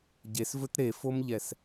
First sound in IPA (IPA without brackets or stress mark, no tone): ɟ